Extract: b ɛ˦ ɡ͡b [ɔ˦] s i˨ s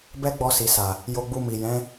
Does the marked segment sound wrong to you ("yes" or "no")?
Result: yes